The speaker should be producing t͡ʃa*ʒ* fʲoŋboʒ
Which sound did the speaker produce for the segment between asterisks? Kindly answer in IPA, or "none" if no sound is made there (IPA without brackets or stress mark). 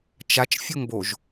t͡ʃ